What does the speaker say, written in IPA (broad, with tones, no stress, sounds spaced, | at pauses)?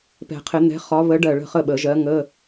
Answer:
p ɛ̤˨˩˦ qʰ ɪ˨˩˦ n̪ ɛ̤˨˥ χ ɒ˨˥ β ə˨˥ ɖ ɜ˧˩ ɭ ə̤˥˨ χ ə˥˨ ɓ ə˨˩˦ ʒ ɜ˨˥ ŋ ə˧˥˧